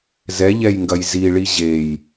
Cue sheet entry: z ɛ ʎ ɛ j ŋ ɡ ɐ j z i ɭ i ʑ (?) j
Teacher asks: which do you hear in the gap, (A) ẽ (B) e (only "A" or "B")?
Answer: B